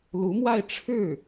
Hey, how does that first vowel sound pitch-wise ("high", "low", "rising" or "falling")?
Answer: rising